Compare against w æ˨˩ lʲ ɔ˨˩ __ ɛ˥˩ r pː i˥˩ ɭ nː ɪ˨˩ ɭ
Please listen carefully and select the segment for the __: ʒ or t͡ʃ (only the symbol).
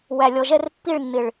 ʒ